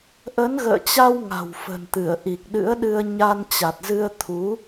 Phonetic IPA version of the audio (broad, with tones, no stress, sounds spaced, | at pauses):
ʔ ə˨˦ n ɣ ə̰ː˧˨ t͡ɕ a˧ w ŋ a̤˨˩ w f ə̤˨˩ n t̪ ɨ˧˩ ə̯ ʔ i˨˩ k̚ ɗ ɨ̰˧˥ ə̯ ɗ ɨ˧ ə̯ ɲ a˧ n t͡ɕ a˨˩ t̚ z ɨ˧ ə̯ t̪ʰ u˨˦